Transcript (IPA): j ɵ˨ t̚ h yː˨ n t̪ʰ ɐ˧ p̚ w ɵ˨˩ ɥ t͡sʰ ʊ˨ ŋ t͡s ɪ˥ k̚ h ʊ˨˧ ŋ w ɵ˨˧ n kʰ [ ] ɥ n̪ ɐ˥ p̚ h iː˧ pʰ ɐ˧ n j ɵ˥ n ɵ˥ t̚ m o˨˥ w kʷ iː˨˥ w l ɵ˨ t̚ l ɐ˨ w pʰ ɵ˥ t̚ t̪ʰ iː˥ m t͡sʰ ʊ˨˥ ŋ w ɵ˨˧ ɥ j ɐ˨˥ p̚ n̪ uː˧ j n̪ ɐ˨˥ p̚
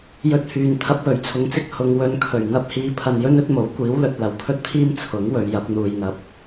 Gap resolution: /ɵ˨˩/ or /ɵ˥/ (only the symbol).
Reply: ɵ˨˩